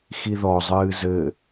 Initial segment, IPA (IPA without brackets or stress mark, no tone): x